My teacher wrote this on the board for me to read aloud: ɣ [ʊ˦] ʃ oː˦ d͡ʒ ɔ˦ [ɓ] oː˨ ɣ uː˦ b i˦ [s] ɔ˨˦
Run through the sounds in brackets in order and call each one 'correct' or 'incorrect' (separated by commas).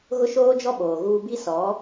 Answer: correct, correct, correct